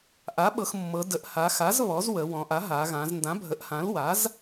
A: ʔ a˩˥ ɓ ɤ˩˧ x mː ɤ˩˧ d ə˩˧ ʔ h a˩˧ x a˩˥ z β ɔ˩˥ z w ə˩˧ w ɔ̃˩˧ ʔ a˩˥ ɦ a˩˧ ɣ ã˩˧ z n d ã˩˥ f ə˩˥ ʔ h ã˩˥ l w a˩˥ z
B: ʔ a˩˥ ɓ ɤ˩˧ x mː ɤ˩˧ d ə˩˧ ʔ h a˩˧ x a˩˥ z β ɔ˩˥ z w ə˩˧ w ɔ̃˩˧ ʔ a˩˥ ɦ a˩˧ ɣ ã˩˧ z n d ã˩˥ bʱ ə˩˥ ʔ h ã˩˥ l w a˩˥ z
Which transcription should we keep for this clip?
B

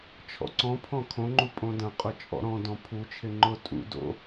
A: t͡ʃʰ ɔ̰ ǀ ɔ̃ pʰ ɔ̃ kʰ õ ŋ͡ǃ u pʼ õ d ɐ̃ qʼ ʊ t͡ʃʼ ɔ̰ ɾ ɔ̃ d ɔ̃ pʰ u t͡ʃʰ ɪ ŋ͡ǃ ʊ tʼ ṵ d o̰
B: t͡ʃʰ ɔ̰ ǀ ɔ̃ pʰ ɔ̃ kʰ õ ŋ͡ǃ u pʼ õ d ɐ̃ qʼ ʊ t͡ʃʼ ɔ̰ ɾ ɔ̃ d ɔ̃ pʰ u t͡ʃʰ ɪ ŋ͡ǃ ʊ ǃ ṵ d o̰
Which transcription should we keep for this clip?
A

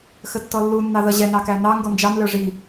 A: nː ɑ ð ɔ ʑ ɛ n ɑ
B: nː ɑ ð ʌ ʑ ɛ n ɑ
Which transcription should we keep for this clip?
B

